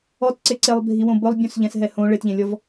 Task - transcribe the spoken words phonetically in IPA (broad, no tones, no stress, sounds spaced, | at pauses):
ɔ t ǀ e ǀ e lˠ bʱ i w õ b ʊ lˠ bʲ ũ s ʎ ɛ̃ s ɦ ɛ h õ ɭ ɪ t ʎ ẽ lʲ ɔ v